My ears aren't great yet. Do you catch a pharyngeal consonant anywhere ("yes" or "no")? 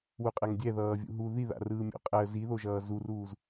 no